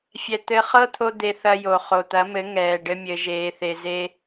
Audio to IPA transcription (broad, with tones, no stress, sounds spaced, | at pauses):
fʲ ɛ˨ t̪ ɘ˧ χ ɤ˦ t̪ʰ o˧ d̪ e˧ θ ɐ˧ j o˨ χ o˨ t̪ ɐ˨˦ m ɘ˨˦ ŋ ɛː˨ ɖ ɘ˦ mʲ ɘ˧ ʒ eː˧ θ e˧ z e˦